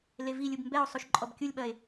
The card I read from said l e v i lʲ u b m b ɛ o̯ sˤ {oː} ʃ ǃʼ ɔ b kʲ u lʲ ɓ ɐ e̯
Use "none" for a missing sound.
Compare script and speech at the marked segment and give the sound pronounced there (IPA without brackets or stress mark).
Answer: o